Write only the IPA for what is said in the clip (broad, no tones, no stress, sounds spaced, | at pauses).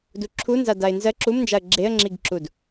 d u ǁʰ u n z a d a ɪ̯ n z ɜ ǁ u m n d͡ʒ a ə̯ ɡ͡ǁ e ə̯ ŋ͡ǁ i ɡ ǁ u d